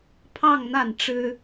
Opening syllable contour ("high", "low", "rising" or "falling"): falling